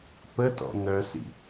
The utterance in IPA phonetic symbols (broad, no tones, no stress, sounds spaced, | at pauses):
p ə t ɔ̰ n̪ œ s ḭ